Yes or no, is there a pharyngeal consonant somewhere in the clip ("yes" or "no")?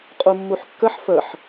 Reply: yes